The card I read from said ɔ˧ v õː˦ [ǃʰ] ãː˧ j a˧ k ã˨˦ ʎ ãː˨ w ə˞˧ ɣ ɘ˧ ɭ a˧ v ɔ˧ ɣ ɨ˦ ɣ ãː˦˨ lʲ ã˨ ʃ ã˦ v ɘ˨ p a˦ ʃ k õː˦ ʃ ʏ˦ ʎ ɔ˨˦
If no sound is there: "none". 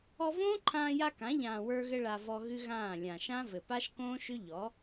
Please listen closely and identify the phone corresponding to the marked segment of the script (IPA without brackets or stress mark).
ǃʰ